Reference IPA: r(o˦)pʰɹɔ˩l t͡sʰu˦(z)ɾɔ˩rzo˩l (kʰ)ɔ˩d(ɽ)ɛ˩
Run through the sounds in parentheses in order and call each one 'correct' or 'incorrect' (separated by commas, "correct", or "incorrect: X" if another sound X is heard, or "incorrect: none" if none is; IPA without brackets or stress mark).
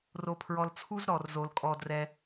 incorrect: o˩, correct, incorrect: kʼ, incorrect: r